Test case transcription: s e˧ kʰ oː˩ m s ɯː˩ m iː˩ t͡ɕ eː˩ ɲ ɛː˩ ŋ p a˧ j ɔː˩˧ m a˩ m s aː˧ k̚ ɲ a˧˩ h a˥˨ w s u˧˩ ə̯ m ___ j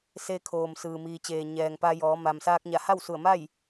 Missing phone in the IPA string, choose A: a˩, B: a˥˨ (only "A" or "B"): B